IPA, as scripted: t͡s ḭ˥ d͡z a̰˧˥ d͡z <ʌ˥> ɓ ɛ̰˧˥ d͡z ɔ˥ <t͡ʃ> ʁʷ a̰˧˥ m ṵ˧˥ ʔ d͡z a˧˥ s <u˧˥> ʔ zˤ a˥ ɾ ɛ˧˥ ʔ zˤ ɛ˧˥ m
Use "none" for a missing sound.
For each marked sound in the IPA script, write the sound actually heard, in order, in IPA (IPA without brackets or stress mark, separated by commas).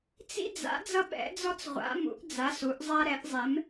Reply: ʌ˥, t͡s, u˧˥